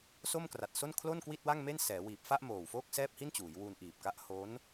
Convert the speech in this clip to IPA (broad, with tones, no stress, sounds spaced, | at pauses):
s o˥˩ m k r a˨˩ t̚ s o˥˩ n kʰ l o˥˩ n k w i˥˩ t̚ w a˥˩ ŋ m e˥˩ n s ɛː˩˦ w iː˨˩ p̚ f a˥˩ ʔ m oː˨˩ w f oː˥˩ k̚ s ɛː˥˩ p̚ h i˥˩ n t͡ɕ uː˩˦ j w u˧ n ʔ iː˨˩ p̚ k a˦˥ ʔ h o˦˥ n